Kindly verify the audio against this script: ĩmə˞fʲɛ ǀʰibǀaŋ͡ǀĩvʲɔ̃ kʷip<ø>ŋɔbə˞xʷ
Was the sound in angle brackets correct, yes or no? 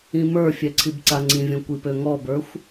yes